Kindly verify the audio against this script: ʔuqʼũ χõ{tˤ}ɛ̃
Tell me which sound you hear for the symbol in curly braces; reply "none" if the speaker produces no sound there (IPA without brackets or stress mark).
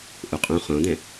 d̪